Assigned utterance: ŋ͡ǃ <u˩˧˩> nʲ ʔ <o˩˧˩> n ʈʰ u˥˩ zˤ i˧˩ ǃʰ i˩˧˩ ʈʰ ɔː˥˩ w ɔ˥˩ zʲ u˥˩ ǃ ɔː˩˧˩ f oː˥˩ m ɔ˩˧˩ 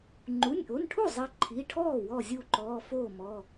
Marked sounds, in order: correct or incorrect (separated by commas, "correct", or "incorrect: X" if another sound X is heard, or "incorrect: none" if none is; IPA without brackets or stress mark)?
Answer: correct, correct